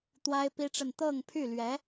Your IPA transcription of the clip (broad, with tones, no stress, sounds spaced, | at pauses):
t̪ w a˥ ɪ̯ p i˥ ʈ͡ʂ ə˥˧ n t̪ ɤ˥˧ ŋ pʰ y˥˩ l ɥ ɛ˧˥